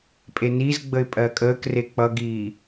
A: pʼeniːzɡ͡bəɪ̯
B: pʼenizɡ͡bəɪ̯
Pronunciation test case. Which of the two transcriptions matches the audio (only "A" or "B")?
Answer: B